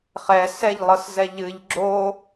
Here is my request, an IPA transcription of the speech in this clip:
χ ɛ s ɛ ʎ lˠ ɤ s z ɛ ʎ ɨ ʎ ɡ͡ǁ o

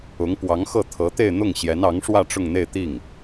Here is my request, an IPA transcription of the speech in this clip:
ʊ˧˥ ŋ p w ɑ˧˥ ŋ x ɤ˥˩ t̪ʰ ɤ˧˥ t̪ e˥˧ ɪ̯ n̪ ʊ˥˩ ŋ ɕ j ɛ˧˥ n ɑ˧˥ ŋ ʂ w ä˥˧ ʈ͡ʂ ʊ˥˧ ŋ n̪ e˥˧ ɪ̯ t̪ i˥˩ ŋ

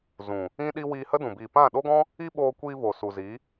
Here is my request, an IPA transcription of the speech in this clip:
z ũ˨ | ĩ˦ ɗ i˦ w iː˧ h ə˦ d ũ˨ b iː˨ p ã˦˨ ɗ o˦ ɡ ɔ̃˦ | i˦ ɓ oː˧ kʷ iː˧ v o˨ s u˨ z i˨˦

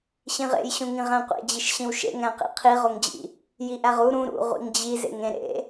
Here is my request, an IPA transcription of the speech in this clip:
ɕ ĩ ʁ ḛ j ɕ ũ ŋ ĩ ʁ æ̃ qʷ ḛ d͡ʑ i ʃ ɕ ĩ w ʃ ḛ ŋ æ̃ q ḭ qʰ i ʁ o ŋ d͡ʑ ḭ | j i ʔ æ ʁ u ɾ ũ ɾ ṵ ʁʷ ḭ ŋ d͡ʑ i z ḛ ŋ ẽ ɾ ḛ

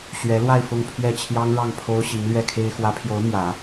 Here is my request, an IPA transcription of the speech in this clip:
ɕ ɥ ɛ˧˥ l w a˥˧ ɪ̯ f ʊ˥˧ ŋ pʰ ɥ ɛ˥˩ t͡ɕʰ j ɑ˥ ŋ ɻ ɑ˥˩ ŋ pʰ o˥ ʊ̯ ɕ i˧˥ ŋ l ɥ ɛ˥˩ kʰ e˥ ɪ̯ x w ä˧˥ pʰ j o˧˥ ʊ̯ m j ä˨˩˦

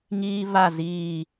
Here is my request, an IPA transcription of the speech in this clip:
ŋ iː˦ β a˦˨ z iː˦˨

